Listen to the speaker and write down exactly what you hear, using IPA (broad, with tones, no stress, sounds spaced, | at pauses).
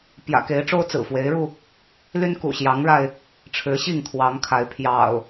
p j ä̰˨˩ k e˨˦ ɪ̯ ʈ͡ʂ o˦ ʊ̯ t͡s ɹ̩˨˩ f w e˨˦ ɪ̯ ɻ u˧ | l y˦ n k ṵ˨˩ ɕ j ɑ˨˦ ŋ ɻ a˧ ɪ̯ | ʈ͡ʂʰ ɻ̩˨˦ ɕ i˥˨ ŋ t̪ʰ w ɑ˨˦ ŋ kʰ a˨˦ ɪ̯ pʰ j ɑ̰˨˩ ʊ̯